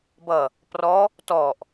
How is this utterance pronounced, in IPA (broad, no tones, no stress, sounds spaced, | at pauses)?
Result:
b ʌ | p r ɔ | t ɔ ʔ